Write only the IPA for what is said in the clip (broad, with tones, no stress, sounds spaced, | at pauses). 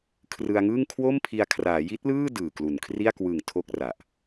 kʰ r ɯ˧ a̯ ŋ ɯː˥˩ ŋ kʰ w o˥˩ m pʰ i˧ a̯ kʰ r aː˩˦ j i˦˥ t̚ l ɯː˥˩ d ɯː˨˩ k l u˨˩ n kʰ r i˥˩ a̯ k w ɯ˨˩ ŋ tʰ o˥˩ k̚ r a˨˩ ʔ